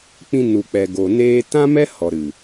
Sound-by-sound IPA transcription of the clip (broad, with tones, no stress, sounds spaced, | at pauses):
k͡p ĩ˧ n u˨ k͡p ɛ˨ ɡ o˨ n eː˧ t ã˦ m ɛ˦ h ɔ˨ ɾ ɨ˨